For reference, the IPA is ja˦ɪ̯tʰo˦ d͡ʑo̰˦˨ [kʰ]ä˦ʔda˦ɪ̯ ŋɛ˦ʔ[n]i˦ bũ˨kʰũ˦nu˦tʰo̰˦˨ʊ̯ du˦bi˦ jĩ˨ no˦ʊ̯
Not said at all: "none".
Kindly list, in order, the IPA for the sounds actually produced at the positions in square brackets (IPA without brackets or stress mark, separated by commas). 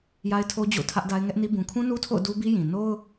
tʰ, n